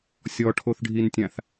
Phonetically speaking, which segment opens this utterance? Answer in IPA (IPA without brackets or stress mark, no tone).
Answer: sʲ